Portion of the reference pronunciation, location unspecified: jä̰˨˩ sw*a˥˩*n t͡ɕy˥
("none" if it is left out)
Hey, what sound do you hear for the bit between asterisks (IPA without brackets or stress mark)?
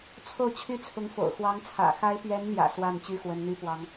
a˥˩